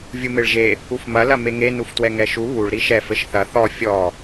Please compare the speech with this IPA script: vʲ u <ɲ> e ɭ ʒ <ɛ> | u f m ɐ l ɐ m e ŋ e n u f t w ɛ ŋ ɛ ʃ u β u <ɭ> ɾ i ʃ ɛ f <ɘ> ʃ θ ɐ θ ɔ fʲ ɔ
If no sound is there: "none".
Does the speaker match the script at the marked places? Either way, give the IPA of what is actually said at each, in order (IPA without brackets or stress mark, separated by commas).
m, e, ɭ, ɘ